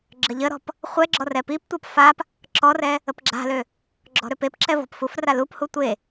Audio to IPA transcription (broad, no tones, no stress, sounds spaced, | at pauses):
ɡ͡ǁ ə ʎ ə ɾ ɔ̤ p | χʷ ɛ ɡ͡ǁ ɔ r ɛ p i p tʷ a p f a p | ǁ ɔ r ɛ | ə p ɡ͡ǁ a̤ l ø | ɡ͡ǁ ɔ̤ ɾ ø p e p ǁ ɛ v ɔ̤ p f u f r a l u p h u tʷ e